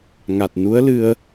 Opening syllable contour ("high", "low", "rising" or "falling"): low